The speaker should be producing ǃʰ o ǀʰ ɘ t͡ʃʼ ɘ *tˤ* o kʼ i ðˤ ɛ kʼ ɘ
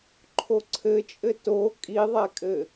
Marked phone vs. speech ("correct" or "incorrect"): incorrect